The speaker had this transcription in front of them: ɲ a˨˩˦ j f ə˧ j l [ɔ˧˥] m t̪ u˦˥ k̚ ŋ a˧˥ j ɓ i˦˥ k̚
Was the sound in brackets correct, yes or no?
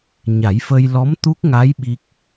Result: yes